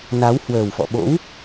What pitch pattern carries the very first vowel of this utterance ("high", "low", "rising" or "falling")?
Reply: rising